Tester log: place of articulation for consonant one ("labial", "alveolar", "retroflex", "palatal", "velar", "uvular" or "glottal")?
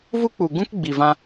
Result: labial